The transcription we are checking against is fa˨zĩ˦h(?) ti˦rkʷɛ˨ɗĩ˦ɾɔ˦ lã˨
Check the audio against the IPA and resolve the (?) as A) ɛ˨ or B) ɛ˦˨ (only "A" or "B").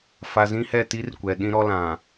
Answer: B